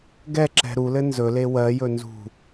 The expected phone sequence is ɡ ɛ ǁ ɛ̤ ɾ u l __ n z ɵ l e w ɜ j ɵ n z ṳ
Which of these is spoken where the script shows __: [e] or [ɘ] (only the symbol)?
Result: ɘ